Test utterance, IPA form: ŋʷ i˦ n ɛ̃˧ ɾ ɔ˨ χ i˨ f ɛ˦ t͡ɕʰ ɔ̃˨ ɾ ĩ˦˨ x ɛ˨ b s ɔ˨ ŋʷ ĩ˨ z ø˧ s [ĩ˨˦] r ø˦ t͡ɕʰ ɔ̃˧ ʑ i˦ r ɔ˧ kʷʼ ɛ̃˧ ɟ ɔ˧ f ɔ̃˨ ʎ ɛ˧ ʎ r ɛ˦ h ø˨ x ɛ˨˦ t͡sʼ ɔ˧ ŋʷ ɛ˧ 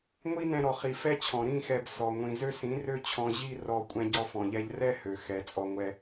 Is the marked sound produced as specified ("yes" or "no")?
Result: yes